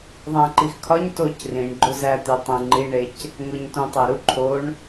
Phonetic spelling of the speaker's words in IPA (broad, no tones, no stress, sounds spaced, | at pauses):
ðˤ æ̃ ǃ i x kʰ ɒ ɲ t o c r ĩ ɳ ɡ͡ǃ o z æ t̪ i tˤ ẽ ŋ͡ǃ i ɳ e c | ŋ o ɲ t õ tˤ æ ɾ u ǃʰ o ɳ